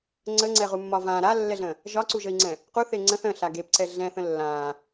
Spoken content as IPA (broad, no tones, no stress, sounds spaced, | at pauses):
ŋ͡ǀ ə ŋ͡ǀ ɛ ʁ u mː ɒ v ã ɾ a lː ɛ ɮ ə̃ | ʒ ɒ ǀ u ʒ ə i̯ ŋ͡ǀ ɛ̃ | q u θ e ŋ͡ǀ ə̃ θ ə̃ ɬ a ɡ e p ǀ ɛ ɮ ɛ̃ θ ə̃ lː ã